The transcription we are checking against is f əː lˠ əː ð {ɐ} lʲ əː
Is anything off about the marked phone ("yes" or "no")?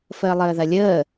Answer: no